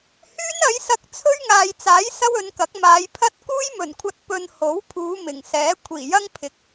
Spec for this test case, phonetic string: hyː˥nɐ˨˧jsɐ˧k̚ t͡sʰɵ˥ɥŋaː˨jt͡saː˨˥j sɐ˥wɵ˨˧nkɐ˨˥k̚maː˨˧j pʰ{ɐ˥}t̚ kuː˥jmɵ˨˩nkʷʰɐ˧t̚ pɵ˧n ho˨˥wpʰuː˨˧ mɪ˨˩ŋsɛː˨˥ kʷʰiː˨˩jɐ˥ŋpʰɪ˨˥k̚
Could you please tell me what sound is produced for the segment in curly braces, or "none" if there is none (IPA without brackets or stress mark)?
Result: ɐ˥